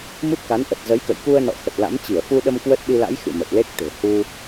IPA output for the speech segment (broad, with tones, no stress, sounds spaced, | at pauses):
m ɨ˦˥ p̚ k a˨˦ n ʔ ə˨˩ t̚ z ə˨˦ j k ə̰˧˨ j k u˧ ə̯ n ɔ̰˧˨ x ə˨˩ t̚ l a̰˧˥ m t͡ɕ i˧˩ ə̯ f u˧ ɗ ə˧ m k w ə˦˥ t̚ ɗ i˧ l a̰˧˥ j x ɨ̰˧˨ m ə˨˩ t̚ l e˦˥ k̚ t̪ e̤˨˩ h u˧